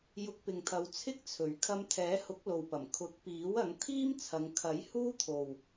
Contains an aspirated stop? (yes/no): yes